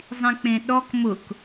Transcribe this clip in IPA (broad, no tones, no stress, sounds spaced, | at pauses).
zˤ ĩ k͡p ẽ ɗ ɔ k m ʊ k